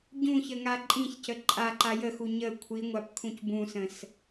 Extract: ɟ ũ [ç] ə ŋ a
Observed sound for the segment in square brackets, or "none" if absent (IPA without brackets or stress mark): ç